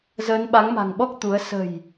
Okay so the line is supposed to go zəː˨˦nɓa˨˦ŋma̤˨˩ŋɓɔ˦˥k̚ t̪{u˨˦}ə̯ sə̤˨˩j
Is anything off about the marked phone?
no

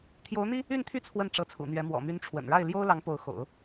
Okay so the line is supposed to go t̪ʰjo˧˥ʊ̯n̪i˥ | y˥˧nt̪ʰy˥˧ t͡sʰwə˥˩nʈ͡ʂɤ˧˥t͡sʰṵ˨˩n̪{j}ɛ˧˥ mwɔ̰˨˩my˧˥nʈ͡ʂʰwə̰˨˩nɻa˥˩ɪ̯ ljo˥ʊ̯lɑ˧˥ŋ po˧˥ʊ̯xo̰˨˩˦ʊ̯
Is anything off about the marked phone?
yes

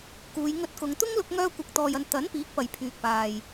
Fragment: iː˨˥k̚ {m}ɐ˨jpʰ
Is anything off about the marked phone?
yes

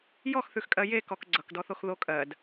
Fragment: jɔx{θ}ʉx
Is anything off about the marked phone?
no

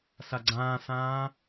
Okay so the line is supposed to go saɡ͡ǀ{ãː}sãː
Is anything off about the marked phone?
no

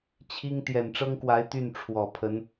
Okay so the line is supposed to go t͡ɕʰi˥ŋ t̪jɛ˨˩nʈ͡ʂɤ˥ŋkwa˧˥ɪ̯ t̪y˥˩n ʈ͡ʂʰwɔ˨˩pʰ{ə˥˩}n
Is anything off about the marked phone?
yes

